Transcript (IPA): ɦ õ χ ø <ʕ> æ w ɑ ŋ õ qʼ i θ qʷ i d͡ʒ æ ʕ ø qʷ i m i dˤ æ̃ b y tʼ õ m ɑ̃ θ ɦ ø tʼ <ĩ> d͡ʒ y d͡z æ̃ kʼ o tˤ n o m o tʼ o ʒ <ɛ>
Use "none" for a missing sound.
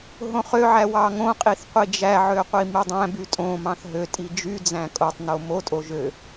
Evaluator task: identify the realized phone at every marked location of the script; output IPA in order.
ʕ, i, ø

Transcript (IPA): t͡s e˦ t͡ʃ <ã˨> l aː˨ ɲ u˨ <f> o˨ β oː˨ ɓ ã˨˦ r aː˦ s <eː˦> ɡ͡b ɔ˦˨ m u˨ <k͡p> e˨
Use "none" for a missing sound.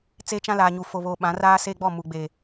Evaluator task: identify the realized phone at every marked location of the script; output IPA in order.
ã˦, f, eː˦, ɡ͡b

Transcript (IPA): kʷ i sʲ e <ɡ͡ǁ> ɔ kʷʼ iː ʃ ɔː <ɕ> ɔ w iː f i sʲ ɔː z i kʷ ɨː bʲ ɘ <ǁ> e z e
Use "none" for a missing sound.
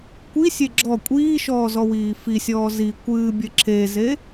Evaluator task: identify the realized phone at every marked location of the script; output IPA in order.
ɡ͡ǁ, z, ǁ

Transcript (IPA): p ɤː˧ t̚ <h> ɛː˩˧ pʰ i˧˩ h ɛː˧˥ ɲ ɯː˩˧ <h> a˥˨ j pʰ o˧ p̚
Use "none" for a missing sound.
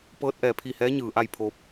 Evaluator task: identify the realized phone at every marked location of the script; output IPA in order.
ʔ, ʔ

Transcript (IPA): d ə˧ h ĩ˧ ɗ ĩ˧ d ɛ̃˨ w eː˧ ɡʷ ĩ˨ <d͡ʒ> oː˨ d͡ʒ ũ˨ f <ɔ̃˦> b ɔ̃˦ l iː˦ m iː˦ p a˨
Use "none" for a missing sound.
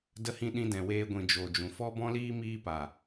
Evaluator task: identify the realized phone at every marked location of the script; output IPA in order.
d͡ʒ, ɔ˦

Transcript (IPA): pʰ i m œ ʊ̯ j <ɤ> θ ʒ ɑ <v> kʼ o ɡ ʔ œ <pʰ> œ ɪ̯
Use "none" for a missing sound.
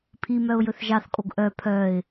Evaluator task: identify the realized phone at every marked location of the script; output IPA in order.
ɵ, θ, pʰ

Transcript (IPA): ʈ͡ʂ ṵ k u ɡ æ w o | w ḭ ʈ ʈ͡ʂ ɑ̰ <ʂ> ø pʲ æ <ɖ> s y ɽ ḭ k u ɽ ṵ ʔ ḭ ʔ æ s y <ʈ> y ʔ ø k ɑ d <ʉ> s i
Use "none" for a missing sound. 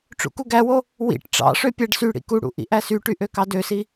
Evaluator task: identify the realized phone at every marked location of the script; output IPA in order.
ʂ, ɖ, ʈ, ø

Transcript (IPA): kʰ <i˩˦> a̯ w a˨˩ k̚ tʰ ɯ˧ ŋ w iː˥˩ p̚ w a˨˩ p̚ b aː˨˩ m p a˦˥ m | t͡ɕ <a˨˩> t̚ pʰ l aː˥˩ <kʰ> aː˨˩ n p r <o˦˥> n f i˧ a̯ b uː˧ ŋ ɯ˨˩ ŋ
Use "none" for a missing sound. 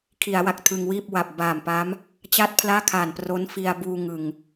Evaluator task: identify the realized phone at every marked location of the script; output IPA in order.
i˩˦, a˥˩, kʰ, o˦˥

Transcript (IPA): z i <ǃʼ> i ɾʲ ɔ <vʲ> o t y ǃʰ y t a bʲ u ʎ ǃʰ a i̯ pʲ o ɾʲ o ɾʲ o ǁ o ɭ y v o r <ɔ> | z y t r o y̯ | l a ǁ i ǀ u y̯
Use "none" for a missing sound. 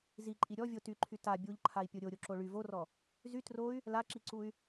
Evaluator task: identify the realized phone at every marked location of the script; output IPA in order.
ǃʼ, vʲ, ɔ

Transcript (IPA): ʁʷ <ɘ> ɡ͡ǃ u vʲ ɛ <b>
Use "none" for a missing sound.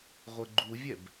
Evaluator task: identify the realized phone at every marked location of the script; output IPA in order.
ɘ, b

